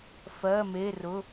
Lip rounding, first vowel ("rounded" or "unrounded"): unrounded